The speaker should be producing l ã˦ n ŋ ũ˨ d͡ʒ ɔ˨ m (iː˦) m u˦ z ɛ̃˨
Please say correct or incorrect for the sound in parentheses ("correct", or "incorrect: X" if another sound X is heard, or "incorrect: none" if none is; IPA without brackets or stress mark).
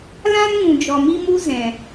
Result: incorrect: i˦